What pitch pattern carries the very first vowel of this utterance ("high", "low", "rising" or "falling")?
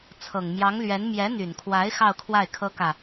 low